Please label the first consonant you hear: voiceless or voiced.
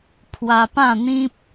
voiceless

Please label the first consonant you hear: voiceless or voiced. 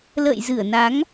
voiced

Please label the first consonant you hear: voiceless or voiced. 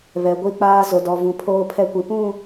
voiced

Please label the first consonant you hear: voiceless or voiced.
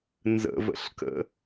voiced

